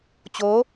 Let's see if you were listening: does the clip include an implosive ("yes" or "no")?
no